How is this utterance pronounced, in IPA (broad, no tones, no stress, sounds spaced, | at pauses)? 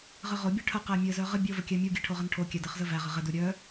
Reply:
ʁ ə ʁ o bʲ œ ʈʰ ə q æ mʲ ɘ z œ ʁ ə bʲ o v ə kʲ æ mʲ u ɡʲ ɘ ʈʰ o ʁ ə n ʈʰ o kʲ æ d ɘ χ z ə v æ ʁ ə ʁ ɘ d u ɾʲ œ